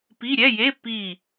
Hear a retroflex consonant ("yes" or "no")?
no